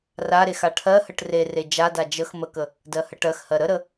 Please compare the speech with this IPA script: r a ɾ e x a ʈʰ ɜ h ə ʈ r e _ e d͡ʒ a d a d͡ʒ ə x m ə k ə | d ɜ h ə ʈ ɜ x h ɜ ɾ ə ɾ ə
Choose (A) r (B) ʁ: A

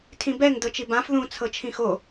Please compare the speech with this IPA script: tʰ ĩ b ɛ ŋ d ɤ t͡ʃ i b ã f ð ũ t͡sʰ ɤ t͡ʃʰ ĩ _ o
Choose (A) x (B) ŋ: A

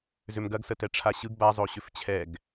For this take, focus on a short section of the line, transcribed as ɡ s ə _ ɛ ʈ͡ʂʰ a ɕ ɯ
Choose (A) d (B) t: B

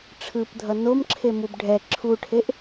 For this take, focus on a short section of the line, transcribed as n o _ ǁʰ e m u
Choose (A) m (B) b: A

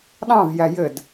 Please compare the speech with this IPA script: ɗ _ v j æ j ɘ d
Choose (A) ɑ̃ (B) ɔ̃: A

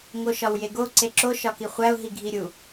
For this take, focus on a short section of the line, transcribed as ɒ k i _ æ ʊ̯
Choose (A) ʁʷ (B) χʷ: B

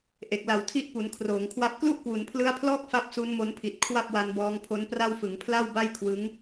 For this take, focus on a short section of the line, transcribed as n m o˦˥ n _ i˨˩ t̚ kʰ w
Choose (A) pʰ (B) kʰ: A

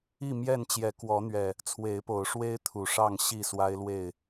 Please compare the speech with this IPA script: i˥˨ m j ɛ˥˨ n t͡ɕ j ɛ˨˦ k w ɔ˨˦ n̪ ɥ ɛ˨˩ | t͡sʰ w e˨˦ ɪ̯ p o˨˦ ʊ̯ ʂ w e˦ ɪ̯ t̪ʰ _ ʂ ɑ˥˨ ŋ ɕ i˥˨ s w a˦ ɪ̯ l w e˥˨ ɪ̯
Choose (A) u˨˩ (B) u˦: A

